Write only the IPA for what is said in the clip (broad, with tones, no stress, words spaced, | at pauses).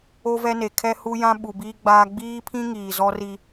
o˦vɛ˦ne˨ kʰɛ˦hu˦jã˦ ɓu˨biː˦ ɡ͡baː˦ ɡ͡biː˦pʰĩ˦ ŋiː˨zɔ˦ri˦